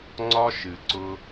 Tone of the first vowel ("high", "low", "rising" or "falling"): high